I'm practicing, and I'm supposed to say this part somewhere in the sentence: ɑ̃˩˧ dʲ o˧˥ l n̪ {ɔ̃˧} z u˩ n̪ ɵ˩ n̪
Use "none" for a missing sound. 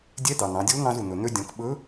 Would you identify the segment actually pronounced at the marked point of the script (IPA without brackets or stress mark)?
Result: ɑ̃˧